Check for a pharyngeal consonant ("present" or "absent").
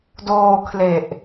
absent